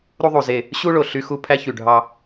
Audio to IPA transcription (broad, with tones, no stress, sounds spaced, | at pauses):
ɾ u˦ ðˤ u˨ z e˦˨ | ɕ u˦ ɭ o˨ ɬ y˦ x u˦ pʰ æ˦ ç y˨ ɖʱ ɑ˦